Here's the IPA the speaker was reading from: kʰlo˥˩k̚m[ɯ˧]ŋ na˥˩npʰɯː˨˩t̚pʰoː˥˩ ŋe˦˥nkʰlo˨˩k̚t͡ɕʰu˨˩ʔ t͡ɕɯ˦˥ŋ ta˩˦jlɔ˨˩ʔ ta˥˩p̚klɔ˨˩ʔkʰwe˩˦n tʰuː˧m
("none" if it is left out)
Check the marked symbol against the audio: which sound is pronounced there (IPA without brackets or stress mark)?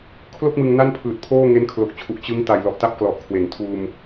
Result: ɯ˧